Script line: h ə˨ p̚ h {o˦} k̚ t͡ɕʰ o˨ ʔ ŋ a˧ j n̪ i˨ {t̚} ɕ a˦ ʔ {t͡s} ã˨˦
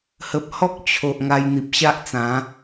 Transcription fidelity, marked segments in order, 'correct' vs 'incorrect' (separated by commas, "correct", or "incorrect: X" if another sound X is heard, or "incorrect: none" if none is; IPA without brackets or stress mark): incorrect: ɔ˦, incorrect: p̚, correct